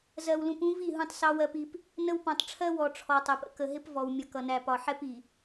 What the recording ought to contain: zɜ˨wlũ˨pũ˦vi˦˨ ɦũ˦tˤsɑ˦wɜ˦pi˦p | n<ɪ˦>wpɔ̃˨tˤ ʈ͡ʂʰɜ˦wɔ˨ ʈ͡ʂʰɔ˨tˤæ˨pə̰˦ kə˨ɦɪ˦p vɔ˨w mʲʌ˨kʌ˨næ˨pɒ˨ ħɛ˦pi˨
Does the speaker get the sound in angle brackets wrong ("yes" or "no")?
yes